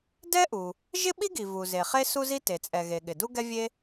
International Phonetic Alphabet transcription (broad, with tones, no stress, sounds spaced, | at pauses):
d ɛ˥ ʔ u˩ | ʒ ɪ˥ ɓ i˥ ɡ i˩ v u˩ z e˩ χ e˥ s u˥ z i˥ t e˩ t͡sʼ ɛ˩ ɣ e˩ ɠ ɪ˩ d u˥ ɡ ɛ˥ vʲ e˥